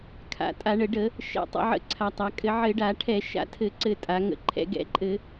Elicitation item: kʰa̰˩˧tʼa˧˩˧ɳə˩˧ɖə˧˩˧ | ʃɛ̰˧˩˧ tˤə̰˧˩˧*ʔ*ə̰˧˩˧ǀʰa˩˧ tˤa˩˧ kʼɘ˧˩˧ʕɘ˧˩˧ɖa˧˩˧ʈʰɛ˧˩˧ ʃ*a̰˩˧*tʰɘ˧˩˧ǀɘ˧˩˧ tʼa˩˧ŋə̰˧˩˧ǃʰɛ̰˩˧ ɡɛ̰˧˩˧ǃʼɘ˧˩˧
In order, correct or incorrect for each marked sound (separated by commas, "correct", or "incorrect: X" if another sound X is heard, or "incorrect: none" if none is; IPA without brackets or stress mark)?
incorrect: ʕ, incorrect: a̰˧˩˧